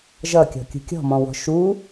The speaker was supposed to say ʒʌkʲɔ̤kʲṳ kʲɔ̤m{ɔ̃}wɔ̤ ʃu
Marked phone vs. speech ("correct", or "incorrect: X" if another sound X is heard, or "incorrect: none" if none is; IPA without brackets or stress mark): correct